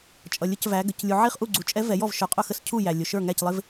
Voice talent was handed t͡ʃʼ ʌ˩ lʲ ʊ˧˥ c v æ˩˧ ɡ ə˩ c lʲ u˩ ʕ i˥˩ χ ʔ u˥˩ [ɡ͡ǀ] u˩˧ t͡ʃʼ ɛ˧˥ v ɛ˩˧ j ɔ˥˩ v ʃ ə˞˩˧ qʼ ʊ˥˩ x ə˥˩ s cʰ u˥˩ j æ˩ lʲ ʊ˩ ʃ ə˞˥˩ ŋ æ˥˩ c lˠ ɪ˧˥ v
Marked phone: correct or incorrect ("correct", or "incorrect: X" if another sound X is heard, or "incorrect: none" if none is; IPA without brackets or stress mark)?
correct